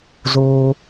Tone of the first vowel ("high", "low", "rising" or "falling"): low